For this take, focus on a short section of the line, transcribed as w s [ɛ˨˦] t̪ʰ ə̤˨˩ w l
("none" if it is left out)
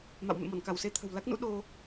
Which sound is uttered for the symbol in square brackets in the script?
e˨˦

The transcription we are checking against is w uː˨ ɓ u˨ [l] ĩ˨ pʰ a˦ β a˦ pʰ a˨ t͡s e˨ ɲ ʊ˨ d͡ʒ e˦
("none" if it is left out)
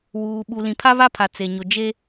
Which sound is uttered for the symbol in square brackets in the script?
l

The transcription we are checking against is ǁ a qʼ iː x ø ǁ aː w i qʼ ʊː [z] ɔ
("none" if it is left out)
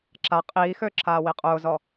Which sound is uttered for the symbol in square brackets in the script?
z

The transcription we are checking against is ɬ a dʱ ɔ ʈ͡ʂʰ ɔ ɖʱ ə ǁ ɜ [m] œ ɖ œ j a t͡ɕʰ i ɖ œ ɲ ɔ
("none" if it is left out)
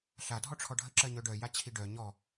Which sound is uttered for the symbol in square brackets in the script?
ɲ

